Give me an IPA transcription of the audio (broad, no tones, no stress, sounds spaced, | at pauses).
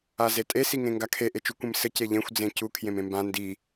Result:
a z e tʼ e s i ŋ ẽ ŋ ɡ a kʰ e ʔ e t͡ʃ u kʷ ẽ m s ɘ c e ʎ ẽ xʷ d͡z ẽ c u kʰ j ẽ m ẽ m b ã n d i